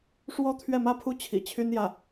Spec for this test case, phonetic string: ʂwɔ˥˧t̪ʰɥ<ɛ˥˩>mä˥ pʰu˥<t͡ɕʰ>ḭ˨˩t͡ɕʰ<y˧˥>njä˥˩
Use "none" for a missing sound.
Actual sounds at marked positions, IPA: ɛ˥˩, t͡ɕʰ, y˥

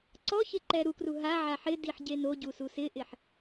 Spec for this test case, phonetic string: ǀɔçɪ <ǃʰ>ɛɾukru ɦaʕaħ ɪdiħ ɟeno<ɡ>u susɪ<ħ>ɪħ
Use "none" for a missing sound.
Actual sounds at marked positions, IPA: ǃ, ɟ, ʔ

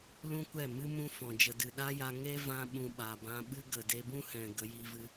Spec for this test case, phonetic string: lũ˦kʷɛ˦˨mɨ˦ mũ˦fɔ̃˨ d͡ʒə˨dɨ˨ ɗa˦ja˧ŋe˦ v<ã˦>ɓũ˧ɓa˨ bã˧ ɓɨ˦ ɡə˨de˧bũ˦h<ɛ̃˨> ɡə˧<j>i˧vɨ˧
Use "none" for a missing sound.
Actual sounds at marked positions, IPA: ã˦, ɛ̃˨, j

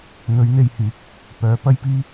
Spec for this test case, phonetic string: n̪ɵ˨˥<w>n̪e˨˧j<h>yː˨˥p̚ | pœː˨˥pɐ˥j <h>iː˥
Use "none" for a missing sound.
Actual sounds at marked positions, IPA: ɥ, h, p

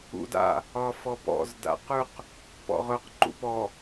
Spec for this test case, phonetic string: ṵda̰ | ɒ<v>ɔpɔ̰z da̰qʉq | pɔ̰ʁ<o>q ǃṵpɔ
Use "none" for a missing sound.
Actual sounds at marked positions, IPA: f, ɵ

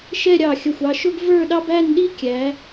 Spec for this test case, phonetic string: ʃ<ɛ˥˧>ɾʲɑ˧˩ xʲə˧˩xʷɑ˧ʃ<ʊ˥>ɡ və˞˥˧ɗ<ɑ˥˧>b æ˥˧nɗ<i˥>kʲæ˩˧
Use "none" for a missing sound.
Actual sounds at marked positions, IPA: ɛ˥˧, ʊ˥, ɑ˥, i˥

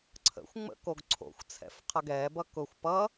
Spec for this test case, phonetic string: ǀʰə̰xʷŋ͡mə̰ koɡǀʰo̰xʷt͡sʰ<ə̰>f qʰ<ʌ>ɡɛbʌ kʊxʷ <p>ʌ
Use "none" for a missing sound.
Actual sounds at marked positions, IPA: ɛ̰, ʌ, p

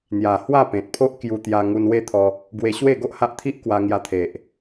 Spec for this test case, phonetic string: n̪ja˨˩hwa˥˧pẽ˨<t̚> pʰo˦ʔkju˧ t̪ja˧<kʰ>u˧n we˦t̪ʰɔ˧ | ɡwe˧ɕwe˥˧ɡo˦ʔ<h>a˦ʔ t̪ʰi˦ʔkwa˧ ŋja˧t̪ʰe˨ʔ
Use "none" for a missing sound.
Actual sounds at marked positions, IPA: t̚, ŋ, h

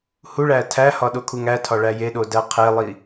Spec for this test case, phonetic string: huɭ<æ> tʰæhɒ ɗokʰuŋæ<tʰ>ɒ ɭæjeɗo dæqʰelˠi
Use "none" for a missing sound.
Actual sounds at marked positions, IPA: æ, tʰ

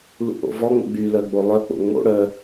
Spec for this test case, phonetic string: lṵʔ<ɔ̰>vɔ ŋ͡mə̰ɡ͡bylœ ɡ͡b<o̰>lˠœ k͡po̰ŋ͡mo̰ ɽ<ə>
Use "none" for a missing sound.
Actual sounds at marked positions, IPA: o̰, o, œ

